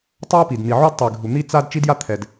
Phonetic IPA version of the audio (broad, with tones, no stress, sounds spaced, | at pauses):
tˤ a˥ p i˩ d n̪ i˩ ʕ o˥ d tˤ i˩ ɡʱ u˩ n̪ i˥ t͡s a˥ d t͡ʃ i˥ d j a˥ t̪ʰ ɛ˩ d